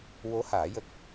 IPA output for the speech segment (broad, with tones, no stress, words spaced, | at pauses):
wo˧˥ haː˨˩˦jə˦˥k̚